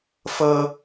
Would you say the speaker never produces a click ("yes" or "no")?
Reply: yes